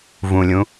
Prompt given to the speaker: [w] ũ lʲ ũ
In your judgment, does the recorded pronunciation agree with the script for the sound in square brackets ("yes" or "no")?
no